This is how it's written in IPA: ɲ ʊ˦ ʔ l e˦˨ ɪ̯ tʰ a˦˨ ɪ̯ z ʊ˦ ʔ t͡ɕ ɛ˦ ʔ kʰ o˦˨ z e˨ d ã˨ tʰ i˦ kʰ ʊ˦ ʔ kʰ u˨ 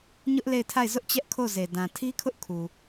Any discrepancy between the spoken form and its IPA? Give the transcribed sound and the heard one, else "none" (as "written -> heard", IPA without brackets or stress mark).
none